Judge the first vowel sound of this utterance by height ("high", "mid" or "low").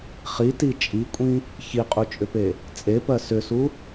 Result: high